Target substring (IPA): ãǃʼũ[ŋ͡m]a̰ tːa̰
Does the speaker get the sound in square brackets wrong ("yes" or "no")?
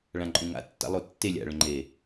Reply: yes